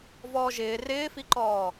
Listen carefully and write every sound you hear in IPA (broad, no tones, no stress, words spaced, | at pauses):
vɔːʒɪː rɪːfiǃɔː